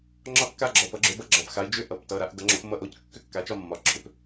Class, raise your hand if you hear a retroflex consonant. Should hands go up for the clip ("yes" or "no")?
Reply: no